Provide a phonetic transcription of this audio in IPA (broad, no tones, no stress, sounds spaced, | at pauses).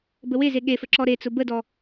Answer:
b ə w e z e ɠ e f ə ǁ ɔ ɾ e t͡s ʊ b ə d ɔ